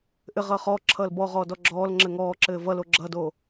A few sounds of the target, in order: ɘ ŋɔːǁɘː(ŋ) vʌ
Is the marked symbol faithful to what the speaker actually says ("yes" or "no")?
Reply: no